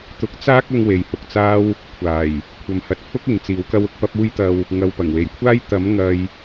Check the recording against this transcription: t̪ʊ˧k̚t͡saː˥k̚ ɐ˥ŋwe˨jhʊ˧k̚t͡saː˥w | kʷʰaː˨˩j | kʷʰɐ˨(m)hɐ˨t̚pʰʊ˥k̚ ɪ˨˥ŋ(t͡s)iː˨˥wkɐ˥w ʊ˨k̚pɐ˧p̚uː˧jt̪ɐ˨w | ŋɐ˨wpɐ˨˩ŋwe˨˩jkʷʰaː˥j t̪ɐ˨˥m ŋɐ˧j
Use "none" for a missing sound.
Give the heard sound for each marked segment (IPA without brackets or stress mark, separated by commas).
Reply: m, t͡s